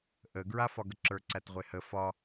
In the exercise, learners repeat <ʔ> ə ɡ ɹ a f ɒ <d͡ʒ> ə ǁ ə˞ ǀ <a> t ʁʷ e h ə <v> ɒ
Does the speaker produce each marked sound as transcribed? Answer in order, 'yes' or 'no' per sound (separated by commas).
yes, no, no, no